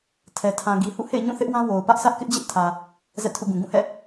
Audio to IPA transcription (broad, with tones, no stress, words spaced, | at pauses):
tʰɛ˨ tʰã˨ɡi˨ hṵ˦˨hḛ˦˨ɪ̯ɲũ˦˨ θɪ˦ʔwã˦ wo˨ʊ̯ pä˦ʔ sʰä˦ʔ kɪ˦ʔd͡ʑɪ˦ʔtʰä˨ | zɛ̰˦˨ tʰṵ˦˨ɡũ˨ ɡũ˦˨hɛ̰˦˨